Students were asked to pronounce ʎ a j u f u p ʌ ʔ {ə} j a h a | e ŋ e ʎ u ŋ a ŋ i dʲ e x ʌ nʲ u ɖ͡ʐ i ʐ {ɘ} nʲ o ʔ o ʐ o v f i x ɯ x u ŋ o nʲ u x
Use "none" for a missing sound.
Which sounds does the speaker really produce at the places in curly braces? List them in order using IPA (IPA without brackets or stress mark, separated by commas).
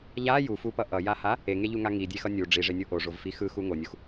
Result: ʌ, e